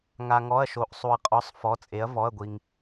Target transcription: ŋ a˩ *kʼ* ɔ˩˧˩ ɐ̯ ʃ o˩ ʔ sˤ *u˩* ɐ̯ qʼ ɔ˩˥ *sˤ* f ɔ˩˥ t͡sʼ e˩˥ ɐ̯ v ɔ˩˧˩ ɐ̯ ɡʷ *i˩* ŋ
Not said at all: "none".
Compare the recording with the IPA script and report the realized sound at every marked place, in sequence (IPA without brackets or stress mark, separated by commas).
ŋ, u˩, sˤ, i˩